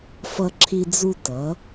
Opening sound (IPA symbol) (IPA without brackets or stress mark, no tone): f